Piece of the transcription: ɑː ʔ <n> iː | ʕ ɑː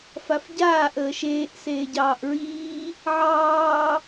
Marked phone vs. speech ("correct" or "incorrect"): incorrect